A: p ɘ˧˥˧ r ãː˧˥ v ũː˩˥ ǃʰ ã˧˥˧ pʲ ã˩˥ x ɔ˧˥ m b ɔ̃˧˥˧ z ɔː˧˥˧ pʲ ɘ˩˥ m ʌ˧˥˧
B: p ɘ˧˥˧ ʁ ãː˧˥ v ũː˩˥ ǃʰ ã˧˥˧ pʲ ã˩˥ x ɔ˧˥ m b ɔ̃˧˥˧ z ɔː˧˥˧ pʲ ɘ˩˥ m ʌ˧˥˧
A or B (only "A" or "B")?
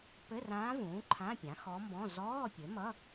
A